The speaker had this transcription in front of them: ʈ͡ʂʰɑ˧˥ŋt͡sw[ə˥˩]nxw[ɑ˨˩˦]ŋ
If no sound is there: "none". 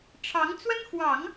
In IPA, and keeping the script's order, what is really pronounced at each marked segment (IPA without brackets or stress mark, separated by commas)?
ə˥, ɑ˨˩˦